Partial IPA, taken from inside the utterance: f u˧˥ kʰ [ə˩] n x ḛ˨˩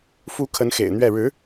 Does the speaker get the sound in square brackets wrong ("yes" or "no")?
yes